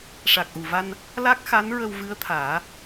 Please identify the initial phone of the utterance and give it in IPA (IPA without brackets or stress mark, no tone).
ʂ